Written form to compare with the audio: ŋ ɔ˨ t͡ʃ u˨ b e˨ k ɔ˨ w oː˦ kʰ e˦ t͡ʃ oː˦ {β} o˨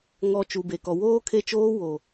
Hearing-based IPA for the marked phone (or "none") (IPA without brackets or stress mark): w